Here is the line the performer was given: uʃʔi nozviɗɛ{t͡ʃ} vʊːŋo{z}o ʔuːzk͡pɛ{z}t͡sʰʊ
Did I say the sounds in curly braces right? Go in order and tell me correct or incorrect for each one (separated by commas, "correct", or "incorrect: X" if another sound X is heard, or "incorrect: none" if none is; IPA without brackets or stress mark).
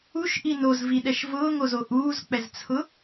incorrect: ʃ, correct, correct